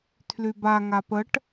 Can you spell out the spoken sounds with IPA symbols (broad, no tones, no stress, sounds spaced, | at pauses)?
tʰ l y b a ŋ a p ə ʈ